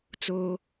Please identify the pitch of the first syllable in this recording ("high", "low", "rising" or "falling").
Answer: high